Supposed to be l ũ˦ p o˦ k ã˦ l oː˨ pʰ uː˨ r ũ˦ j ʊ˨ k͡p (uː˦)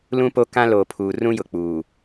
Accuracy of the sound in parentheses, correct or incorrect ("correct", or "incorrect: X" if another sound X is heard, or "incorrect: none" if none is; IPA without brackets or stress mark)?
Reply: incorrect: uː˨